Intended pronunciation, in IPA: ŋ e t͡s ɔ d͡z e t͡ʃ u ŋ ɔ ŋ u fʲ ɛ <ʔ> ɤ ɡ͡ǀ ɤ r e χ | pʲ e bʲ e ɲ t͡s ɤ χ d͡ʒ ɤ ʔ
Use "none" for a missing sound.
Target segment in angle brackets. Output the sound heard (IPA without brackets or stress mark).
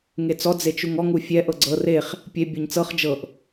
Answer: ʔ